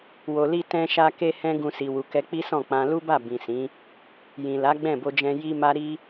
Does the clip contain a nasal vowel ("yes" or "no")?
yes